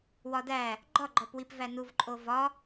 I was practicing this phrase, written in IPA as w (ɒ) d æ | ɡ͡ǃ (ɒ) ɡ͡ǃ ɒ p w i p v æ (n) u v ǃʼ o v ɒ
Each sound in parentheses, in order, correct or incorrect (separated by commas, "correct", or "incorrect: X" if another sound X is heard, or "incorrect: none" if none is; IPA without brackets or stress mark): correct, correct, correct